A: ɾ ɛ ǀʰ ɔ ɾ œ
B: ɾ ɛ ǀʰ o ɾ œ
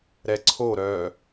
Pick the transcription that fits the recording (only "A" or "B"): B